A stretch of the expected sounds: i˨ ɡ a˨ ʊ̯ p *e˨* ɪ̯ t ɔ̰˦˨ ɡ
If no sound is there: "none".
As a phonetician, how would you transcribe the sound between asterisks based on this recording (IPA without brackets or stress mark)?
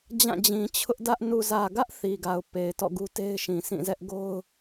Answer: e˨